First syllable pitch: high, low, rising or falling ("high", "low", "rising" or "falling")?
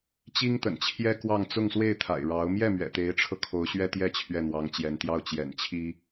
high